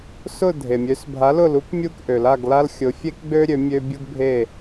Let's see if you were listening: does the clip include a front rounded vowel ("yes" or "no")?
yes